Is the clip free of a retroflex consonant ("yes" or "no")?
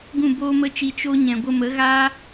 yes